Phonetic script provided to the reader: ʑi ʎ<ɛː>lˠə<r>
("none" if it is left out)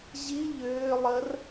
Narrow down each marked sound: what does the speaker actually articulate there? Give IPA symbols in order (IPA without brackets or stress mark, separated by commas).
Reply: ʏː, r